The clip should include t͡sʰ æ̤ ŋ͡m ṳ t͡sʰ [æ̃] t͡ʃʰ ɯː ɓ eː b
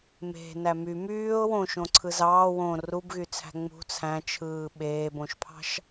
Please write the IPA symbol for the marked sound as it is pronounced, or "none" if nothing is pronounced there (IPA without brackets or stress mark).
æ̃